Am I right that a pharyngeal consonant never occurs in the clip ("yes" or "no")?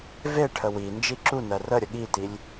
yes